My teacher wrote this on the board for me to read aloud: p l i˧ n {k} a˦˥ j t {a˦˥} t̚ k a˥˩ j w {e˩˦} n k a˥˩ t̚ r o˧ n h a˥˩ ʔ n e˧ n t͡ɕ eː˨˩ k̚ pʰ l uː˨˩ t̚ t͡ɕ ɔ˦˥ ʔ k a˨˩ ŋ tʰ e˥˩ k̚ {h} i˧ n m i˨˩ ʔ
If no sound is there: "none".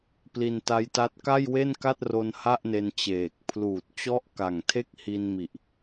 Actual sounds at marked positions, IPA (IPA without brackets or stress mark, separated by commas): t, a˦˥, e˥˩, h